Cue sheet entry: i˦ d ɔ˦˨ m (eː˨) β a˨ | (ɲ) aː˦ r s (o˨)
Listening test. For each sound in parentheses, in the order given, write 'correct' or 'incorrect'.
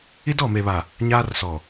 incorrect: e˨, correct, incorrect: ɔ˨

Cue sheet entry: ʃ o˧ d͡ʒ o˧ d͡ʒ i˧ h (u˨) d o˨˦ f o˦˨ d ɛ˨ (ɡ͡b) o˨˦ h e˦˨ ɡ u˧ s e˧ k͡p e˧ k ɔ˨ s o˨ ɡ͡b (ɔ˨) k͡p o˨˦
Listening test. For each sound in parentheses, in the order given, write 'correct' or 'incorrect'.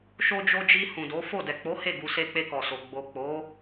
incorrect: ũ˨, incorrect: k͡p, incorrect: o˨

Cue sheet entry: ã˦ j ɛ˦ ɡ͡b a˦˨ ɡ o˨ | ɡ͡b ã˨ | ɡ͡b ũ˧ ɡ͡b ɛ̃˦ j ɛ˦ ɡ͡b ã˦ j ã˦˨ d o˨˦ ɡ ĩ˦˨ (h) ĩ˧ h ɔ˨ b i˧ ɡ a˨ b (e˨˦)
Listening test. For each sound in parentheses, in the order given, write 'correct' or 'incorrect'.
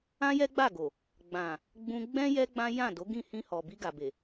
correct, incorrect: e˨

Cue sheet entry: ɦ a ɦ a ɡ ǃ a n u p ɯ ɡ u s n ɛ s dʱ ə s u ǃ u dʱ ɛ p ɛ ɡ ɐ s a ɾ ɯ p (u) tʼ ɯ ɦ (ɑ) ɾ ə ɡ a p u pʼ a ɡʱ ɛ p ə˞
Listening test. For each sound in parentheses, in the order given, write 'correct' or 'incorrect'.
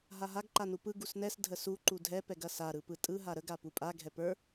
incorrect: ɯ, incorrect: a

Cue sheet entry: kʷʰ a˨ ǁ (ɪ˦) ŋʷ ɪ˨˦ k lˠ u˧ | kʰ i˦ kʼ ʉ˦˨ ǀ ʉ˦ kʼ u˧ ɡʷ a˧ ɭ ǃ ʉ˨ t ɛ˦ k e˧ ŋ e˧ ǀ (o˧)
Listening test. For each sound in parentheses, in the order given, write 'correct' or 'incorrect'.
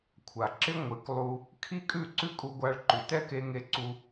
correct, incorrect: u˧

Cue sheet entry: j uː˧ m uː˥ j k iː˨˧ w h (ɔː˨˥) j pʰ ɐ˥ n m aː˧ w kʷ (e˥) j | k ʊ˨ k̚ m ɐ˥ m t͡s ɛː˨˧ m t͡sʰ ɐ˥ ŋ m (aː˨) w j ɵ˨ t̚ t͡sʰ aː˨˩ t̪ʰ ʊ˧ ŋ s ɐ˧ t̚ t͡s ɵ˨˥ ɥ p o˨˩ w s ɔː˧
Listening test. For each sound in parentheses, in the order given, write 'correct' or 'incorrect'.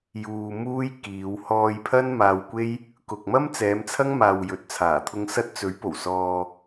incorrect: ɔː˧, correct, correct

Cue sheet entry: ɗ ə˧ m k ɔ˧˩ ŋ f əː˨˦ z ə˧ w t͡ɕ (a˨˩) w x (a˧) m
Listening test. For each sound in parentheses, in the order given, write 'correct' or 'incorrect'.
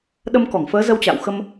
incorrect: a̰˧˨, incorrect: ə˧

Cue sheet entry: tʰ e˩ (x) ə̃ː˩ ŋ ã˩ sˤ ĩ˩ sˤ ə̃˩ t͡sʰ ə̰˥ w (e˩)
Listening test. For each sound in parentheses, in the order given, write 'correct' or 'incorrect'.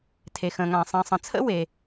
correct, correct

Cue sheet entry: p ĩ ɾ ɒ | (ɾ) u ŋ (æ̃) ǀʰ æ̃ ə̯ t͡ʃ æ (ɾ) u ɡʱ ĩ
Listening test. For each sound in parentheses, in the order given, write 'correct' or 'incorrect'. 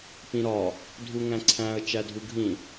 incorrect: dʱ, correct, incorrect: dʱ

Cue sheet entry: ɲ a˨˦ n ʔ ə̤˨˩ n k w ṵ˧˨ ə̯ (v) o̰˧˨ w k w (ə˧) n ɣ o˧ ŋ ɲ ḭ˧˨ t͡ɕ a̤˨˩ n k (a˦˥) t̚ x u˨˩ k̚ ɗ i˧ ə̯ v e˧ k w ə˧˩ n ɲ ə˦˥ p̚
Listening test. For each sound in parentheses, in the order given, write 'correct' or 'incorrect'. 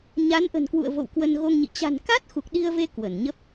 correct, correct, correct

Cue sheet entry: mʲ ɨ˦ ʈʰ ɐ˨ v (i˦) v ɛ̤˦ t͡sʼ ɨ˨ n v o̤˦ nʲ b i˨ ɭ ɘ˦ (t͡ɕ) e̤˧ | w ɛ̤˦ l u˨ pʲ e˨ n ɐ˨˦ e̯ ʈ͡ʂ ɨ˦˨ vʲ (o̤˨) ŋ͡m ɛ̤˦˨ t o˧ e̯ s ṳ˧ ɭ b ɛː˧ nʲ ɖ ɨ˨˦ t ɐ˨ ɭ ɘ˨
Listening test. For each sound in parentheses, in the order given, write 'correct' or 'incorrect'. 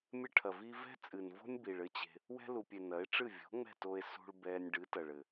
correct, correct, incorrect: o̤˨˦

